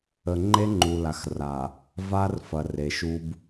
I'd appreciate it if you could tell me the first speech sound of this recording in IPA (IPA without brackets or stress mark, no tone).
ə